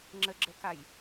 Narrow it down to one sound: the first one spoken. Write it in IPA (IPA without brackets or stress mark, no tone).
ŋ͡ǁ